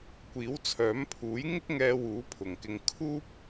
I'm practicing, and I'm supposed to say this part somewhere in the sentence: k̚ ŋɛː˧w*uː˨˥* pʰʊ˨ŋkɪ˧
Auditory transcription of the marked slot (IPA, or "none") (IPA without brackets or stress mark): uː˨˥